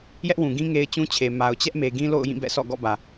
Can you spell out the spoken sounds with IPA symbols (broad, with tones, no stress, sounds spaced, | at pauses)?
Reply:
j ɛ˦ ʔ w ũ˨ ɡ ĩ˦ ŋ e˦ ɪ̯ t͡ɕ ũ˦ t͡ɕʰ e˨ m a˨ ʊ̯ t͡ɕ ɛ˦ ʔ m e˨ ɡ ĩ˦ l o̰˦˨ ʊ̯ j ĩ˦˨ b ɛ̰˦˨ sʰ ɔ̰˦˨ ɡ ɔ̰˦˨ b ä˨